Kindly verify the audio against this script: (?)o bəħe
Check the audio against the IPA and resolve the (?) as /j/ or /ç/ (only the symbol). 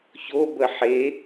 ç